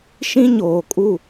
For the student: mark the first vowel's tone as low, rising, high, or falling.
high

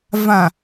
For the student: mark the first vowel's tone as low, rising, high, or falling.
low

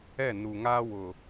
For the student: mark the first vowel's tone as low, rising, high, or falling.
falling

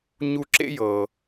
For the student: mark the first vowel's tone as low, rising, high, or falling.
high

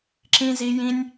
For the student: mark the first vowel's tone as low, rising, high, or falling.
high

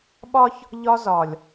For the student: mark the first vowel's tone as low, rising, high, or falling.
high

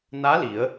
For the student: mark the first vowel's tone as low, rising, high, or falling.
rising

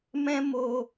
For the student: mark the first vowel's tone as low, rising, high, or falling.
high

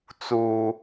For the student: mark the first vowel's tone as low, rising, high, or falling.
high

